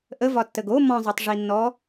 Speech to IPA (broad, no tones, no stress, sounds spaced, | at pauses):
ʔ ə v ɒ tː ə ɡ o m ɔ̃ zˤ o tˤ ʐ i nː ɔ